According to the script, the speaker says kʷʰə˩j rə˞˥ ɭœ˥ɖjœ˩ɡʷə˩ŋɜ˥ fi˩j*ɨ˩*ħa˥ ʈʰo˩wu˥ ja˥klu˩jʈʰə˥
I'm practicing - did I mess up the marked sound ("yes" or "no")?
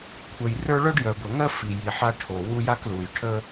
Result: yes